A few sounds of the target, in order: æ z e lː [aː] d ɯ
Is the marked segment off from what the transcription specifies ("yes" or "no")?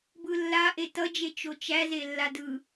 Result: yes